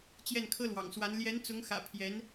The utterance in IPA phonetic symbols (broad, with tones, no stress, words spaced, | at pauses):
t͡ɕjɛ˥˩nkʰɤ˥lwɑ̰˨˩ŋswa˧˥n ljɛ˧˥nt͡sʊ˧˥ŋ xä̰˨˩ pʰjɛ˧˥n